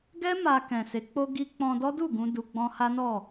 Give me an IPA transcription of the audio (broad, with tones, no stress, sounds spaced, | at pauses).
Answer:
ɡ ɛ˦ m a˧ k ɛ̃˨ s e˨˦ k͡p o˦ ɡ i˦ k͡p ɔ̃˧ d ɔ˦ d u˦˨ ɡ ũ˧ d u˧ ɡ͡b ɔ̃˦ h a˦ n ɔ˦˨